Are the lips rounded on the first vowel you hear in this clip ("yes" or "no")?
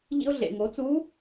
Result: no